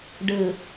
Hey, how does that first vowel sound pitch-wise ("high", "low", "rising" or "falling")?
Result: low